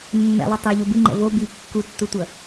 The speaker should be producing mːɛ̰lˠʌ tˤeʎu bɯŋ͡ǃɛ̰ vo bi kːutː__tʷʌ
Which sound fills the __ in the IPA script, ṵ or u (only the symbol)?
u